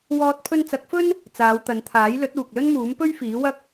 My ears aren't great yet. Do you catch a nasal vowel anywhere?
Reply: no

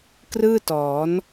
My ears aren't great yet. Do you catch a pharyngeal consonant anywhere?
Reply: no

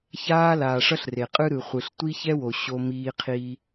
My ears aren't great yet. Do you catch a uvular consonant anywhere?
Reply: yes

